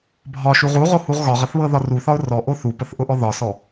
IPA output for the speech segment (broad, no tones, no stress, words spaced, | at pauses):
bʱɒʃu ʁuʁohuʁ ɣɒʁəθβɤðɒ ruθɒʊ̯ rɔʔo θupəθʔʊʔɔ ðɒsɔ